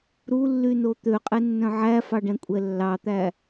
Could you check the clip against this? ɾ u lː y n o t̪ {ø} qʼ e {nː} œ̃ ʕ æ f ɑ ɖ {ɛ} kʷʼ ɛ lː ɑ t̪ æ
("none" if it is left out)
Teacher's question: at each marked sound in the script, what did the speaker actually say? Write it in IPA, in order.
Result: ø, nː, ɛ̃

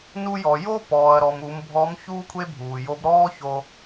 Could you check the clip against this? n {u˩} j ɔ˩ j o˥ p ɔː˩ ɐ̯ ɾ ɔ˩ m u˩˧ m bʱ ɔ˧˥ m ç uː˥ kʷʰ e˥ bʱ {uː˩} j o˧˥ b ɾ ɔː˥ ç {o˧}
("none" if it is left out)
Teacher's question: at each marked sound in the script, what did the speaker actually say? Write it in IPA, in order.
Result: u˧, uː˩, o˧

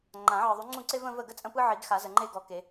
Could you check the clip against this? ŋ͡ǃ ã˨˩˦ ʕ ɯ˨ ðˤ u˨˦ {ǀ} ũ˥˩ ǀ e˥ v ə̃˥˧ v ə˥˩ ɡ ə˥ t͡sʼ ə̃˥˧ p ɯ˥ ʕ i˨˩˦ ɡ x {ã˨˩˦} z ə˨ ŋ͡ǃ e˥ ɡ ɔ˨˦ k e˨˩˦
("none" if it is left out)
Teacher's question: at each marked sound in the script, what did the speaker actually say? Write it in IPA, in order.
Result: ŋ͡ǀ, a˨˩˦

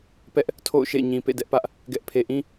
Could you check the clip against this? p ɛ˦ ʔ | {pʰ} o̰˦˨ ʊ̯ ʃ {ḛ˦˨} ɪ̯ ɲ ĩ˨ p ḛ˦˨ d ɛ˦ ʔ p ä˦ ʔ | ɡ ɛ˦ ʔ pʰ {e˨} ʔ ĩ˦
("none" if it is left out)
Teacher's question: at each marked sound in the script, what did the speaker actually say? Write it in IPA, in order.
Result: tʰ, ḛ˦˨, e˨

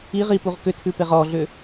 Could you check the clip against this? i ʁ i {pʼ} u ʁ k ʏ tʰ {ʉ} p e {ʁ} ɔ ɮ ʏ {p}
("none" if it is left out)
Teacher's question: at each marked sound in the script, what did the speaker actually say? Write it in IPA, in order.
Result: p, ʉ, ʁ, none

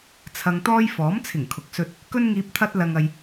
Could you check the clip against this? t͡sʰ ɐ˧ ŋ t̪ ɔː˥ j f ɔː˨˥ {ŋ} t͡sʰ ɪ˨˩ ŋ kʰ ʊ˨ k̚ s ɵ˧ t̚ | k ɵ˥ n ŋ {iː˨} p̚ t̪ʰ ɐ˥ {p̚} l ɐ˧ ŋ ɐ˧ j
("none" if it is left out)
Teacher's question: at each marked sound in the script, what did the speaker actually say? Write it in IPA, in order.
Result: m, iː˧, t̚

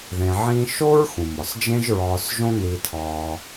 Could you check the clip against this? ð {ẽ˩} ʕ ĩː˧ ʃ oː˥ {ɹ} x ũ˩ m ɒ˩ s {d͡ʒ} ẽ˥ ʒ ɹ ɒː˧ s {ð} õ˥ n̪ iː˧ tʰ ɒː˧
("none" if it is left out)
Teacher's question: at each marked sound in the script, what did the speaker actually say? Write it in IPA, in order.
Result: ẽ˩, ɹ, d͡ʒ, ʒ

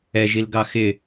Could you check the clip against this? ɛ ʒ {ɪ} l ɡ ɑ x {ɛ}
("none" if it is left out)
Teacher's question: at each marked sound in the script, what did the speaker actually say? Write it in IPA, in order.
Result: i, ɪ

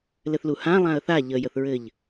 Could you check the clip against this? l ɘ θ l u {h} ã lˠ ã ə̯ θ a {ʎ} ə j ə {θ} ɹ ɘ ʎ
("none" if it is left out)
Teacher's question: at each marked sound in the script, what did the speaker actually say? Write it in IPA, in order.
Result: h, ʎ, θ

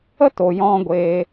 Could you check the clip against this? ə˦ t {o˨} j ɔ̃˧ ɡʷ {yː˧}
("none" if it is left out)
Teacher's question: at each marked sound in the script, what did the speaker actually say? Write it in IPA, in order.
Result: o˨, eː˧

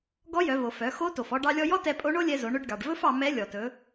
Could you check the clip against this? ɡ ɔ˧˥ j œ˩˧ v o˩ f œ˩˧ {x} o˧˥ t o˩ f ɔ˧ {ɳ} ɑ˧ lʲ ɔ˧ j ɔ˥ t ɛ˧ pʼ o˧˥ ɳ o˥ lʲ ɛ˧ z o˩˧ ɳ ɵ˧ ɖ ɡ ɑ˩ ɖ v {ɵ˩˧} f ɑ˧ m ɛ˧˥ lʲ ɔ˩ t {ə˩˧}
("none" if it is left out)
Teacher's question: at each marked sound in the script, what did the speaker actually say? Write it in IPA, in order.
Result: x, ɖ, ɵ˥, ɵ˩˧

